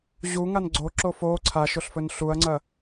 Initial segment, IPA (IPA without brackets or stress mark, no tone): ʑ